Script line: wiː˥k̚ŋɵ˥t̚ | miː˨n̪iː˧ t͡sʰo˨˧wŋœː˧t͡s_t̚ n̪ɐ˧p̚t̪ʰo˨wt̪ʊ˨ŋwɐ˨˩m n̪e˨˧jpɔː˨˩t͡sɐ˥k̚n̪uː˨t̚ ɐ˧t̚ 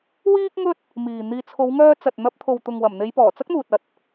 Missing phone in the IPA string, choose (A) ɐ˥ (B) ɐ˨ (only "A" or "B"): B